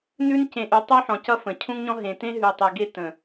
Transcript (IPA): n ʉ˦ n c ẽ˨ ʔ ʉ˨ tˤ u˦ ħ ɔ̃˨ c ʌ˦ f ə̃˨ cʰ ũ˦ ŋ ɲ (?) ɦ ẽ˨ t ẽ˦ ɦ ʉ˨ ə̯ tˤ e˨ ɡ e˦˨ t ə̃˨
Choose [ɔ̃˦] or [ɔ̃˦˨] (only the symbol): ɔ̃˦